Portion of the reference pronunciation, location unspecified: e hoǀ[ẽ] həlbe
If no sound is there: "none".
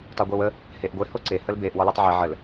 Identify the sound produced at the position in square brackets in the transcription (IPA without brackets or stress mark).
e